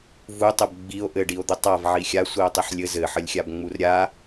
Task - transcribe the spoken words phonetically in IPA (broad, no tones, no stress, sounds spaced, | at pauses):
v u tˤ ə b ɡ͡b i o̯ ʔ ɘ ɖ i o̯ d̪ ə tˤ a v ʕ i xʲ a sʷ i o̯ tˤ i ħ lʲ ɘ z ɘ ħ ə lʲ xʲ a b ŋ͡m u r ɾʲ a